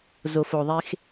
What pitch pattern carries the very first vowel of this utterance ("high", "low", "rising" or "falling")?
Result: low